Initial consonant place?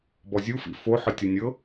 labial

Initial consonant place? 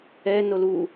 alveolar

